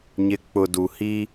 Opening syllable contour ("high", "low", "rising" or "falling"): low